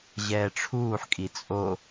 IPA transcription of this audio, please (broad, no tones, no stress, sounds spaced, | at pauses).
ʑ ɛː ʈ͡ʂʰ uː ħ kʼ i t͡sʼ o